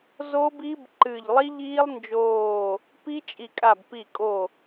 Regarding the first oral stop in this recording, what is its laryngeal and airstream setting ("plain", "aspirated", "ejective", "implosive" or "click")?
plain